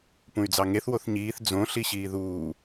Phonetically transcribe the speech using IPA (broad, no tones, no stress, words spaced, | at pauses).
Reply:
pũy̯d͡zɑŋeθ woθɲiːθ d͡zõ ɬiɕiːðuː